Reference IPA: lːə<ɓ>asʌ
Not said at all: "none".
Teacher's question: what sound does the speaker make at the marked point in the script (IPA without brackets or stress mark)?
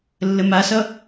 m